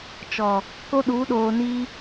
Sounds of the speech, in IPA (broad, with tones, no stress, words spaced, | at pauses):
t͡ʃɔ˨ | ko˦ɗu˨˦ɗoː˨ ni˦